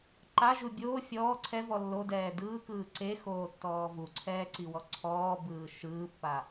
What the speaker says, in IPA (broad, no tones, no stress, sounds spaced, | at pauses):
ǃ a ʒ u bʲ oː fʲ ɔː ǀʰ ɛ v ɔ lː o d ɛː d ɯː k ɯː ǀ e x oː tː ɔː v u ǀʰ ɛː ǀ i w ɔ ǀʰ ɔː b ɯː ʃ ɯː pː a